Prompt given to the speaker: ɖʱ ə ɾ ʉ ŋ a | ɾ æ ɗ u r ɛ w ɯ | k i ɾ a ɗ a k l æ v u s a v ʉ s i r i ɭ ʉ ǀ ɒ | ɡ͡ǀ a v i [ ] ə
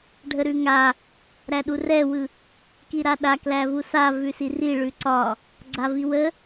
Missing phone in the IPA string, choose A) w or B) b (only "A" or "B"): A